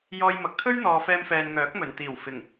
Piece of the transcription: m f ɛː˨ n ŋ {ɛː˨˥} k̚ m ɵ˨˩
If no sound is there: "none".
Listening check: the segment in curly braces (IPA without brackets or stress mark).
œː˨˥